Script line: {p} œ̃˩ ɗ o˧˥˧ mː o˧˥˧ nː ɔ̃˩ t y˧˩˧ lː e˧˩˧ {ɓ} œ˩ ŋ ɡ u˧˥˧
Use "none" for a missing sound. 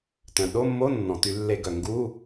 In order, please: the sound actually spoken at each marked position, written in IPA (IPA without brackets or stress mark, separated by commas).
t, ɡ